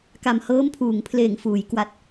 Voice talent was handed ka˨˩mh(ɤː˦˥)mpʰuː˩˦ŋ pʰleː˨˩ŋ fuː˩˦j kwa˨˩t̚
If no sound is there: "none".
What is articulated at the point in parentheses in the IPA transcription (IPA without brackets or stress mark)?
ɤː˦˥